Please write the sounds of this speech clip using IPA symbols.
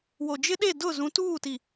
wo˨ d͡ʒɪ˦ɗe˦˨dʊ˦˨ zũ˨˦tuː˦˨ti˨

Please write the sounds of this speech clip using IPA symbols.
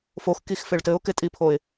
foxkixfeɭ tɘʊ̯ketʼipʰoɪ̯

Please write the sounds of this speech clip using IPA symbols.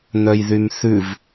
n̪œjðymθʉv

